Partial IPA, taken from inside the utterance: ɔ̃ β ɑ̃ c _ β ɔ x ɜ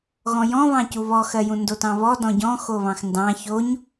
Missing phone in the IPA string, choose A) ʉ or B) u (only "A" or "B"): B